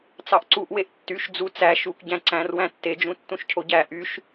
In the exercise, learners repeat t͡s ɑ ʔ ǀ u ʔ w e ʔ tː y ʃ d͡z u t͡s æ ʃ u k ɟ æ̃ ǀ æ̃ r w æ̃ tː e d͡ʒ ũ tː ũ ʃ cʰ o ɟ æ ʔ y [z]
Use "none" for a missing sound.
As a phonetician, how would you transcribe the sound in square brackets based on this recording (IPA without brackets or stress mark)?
ʃ